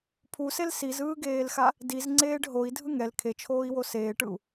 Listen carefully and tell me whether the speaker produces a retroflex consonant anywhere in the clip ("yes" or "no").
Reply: yes